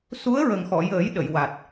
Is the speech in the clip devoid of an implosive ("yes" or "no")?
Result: no